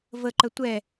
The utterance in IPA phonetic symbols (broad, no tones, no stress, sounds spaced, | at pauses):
v ə ǃ ə tʷ ɛ